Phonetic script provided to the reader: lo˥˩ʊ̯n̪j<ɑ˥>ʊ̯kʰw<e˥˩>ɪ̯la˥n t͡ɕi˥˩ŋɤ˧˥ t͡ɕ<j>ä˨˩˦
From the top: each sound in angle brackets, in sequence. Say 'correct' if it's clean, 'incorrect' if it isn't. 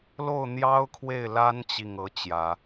correct, correct, correct

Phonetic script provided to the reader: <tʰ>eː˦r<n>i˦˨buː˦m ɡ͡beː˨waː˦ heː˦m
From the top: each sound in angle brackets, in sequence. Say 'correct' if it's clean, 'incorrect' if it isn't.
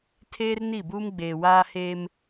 correct, correct

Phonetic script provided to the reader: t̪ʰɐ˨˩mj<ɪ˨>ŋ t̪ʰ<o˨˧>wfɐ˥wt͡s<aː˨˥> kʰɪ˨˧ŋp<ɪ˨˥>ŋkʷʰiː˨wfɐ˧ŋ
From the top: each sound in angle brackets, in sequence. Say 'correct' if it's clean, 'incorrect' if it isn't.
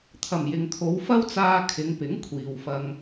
correct, correct, incorrect: aː˧, correct

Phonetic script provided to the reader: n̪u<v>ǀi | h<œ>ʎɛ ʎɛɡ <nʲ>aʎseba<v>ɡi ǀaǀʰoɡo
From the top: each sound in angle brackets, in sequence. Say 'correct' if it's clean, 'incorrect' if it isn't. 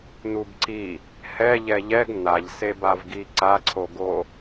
incorrect: b, incorrect: ɛ, incorrect: n̪, correct

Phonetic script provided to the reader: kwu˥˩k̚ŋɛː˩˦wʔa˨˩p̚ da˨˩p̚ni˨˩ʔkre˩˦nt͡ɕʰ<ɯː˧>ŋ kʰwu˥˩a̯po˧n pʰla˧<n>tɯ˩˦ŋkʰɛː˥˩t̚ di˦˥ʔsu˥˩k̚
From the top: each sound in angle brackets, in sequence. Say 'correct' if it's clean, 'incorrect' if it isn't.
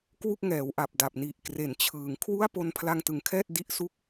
incorrect: ɯː˩˦, incorrect: ŋ

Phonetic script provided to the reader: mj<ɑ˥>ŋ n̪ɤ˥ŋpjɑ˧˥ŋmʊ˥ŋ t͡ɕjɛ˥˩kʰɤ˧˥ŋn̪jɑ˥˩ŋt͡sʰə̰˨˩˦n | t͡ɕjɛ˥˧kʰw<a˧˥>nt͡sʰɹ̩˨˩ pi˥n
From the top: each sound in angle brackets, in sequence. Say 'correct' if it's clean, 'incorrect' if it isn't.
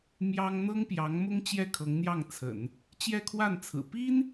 correct, incorrect: a˥˩

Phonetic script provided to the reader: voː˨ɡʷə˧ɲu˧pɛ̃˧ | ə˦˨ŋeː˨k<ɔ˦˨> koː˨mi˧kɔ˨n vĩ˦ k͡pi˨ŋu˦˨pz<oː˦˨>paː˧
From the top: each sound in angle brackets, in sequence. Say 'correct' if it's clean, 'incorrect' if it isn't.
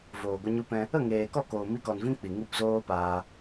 correct, incorrect: oː˦

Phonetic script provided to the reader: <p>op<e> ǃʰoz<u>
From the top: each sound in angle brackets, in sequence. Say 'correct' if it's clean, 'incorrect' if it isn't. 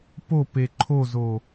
correct, correct, incorrect: o

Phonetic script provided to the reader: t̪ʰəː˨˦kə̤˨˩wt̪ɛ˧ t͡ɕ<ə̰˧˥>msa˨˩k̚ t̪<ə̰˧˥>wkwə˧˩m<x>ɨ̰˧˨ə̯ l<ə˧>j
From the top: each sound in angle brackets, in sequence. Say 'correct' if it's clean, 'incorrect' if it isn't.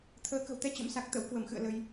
correct, correct, correct, correct

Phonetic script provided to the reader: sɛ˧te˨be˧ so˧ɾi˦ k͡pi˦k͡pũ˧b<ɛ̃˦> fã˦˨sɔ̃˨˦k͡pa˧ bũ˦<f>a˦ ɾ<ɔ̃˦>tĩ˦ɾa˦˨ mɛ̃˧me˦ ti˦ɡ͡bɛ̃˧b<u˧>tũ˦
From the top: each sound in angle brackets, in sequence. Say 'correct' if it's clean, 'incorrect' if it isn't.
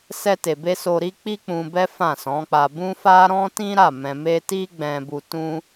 incorrect: ɛ˦, correct, correct, correct

